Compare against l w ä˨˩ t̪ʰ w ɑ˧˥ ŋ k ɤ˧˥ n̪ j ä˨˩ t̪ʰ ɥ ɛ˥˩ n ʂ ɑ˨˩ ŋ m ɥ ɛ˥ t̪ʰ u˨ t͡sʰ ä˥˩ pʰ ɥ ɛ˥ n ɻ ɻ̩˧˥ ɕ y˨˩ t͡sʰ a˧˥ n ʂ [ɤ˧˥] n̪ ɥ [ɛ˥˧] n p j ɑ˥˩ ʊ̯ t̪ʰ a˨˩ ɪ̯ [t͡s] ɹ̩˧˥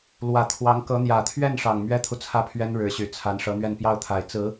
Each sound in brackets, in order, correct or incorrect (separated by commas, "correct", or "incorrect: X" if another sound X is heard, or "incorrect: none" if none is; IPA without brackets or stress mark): correct, correct, correct